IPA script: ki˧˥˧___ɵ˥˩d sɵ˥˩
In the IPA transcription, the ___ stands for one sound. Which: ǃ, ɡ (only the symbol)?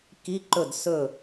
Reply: ǃ